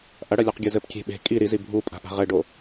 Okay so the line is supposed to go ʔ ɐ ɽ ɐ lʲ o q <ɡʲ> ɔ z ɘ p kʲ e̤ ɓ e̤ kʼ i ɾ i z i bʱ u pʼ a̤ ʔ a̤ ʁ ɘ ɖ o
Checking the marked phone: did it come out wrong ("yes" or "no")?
no